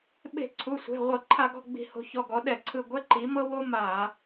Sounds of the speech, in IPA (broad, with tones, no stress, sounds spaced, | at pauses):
ɓ e̤˧˩˧ ǀʰ u˩˧˩ sʷ e̤˩˧˩ ʁʷ ɤ˧˩˧ ǃʰ a˧˩˧ ɡ ɔ̤˦˨ ɡ͡b i̤˧˩˧ h o̤˩˥ ç ɔ˩˧˩ ɡ ɔ˩˥ ɗ ɛ˧˩˧ ǀʰ ɯ˦˨ ɡʷ ɛ˥ ǃ i˩˥ m ɤ˥ w o˥ m a˧˩˧